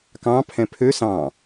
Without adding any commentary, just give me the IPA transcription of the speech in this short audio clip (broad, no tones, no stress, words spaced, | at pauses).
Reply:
kɑ̃ pʰɛ̃pʰø sɑ̃